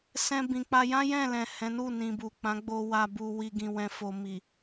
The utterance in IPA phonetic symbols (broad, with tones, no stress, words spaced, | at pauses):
sɛ̃˦bĩ˧ k͡pa˧jã˦ jɛ̃˦˨lɛ̃˨ hɛ̃˨˦nu˦˨nĩ˨ bu˨k͡pã˨˦ ɡ͡bo˧ wa˨bu˨wi˨ ɡĩ˨wɛ̃˨fo˨ mi˨